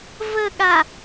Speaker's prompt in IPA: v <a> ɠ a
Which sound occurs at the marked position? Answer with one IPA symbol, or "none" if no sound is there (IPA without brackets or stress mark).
ə